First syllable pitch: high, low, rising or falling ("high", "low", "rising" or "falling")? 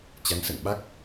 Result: rising